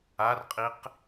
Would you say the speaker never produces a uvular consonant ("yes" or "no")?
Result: no